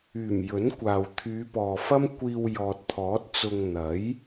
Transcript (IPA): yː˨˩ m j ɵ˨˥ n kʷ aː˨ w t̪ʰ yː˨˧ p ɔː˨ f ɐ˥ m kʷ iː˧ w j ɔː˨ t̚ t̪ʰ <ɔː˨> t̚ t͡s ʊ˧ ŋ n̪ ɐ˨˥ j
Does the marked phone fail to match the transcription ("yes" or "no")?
yes